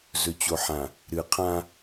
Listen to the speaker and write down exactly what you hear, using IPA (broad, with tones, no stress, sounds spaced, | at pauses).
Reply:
z ɵ˨ t͡ɕ o˨ ħ ã˨ | ɾ ɨ˨ qʰ ã˦